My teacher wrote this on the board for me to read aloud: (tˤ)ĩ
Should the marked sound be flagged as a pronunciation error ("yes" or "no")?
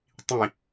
no